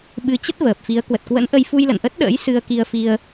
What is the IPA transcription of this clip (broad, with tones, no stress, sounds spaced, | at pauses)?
ɓ ɨ˨˦ t͡ɕ ə˦˥ t̚ v əː˨˩ p̚ f i˨˦ ə̯ k w ə˨˩ t̚ k w ə̰˧˥ n ʔ ə˧ j f u˧ j l ə̰˧˨ n ʔ ə˦˥ t̚ ɗ ə̰ː˧˥ j s ɨ˧ ə̯ k i˧ ə̯ f i˧ ə̯